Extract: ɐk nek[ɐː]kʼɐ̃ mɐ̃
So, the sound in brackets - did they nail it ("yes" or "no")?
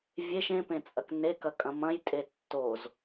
no